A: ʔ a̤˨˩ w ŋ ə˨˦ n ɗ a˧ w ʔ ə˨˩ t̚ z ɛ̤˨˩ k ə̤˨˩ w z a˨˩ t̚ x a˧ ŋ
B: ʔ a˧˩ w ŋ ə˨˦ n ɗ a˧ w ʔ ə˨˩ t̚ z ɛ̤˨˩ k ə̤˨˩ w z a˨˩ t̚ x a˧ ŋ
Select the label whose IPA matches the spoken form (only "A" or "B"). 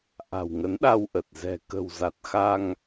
A